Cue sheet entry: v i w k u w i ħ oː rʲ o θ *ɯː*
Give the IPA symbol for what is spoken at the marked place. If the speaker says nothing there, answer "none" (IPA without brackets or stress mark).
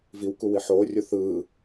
ɯː